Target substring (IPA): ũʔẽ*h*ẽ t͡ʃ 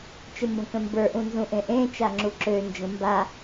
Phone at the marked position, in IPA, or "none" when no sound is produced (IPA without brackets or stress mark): ʔ